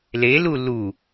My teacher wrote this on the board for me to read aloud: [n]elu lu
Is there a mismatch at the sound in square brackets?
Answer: yes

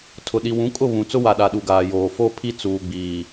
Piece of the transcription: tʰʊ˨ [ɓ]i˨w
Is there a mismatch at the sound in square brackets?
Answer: yes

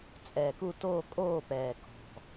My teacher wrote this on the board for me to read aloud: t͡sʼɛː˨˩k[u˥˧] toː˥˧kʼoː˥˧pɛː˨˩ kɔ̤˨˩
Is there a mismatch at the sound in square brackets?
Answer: no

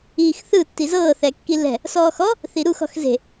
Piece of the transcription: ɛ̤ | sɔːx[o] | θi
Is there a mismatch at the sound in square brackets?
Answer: yes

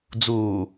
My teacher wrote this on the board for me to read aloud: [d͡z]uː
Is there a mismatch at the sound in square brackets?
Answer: no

